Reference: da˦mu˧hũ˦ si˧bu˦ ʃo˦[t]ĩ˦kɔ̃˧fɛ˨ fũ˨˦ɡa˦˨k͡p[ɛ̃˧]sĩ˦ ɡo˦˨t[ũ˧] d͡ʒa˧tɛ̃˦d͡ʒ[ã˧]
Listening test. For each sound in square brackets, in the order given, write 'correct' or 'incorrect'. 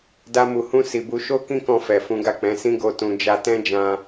incorrect, incorrect, correct, correct

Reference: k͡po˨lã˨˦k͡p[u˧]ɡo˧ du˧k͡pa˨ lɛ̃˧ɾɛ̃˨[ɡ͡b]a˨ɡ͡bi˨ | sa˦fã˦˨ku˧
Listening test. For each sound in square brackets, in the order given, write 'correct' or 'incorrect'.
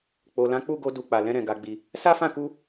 incorrect, incorrect

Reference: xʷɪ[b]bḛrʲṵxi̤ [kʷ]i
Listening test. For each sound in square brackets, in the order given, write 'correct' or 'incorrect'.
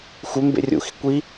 incorrect, correct

